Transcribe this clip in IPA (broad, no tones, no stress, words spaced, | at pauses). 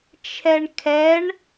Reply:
t͡ʃʰɛɳkʰɛɳ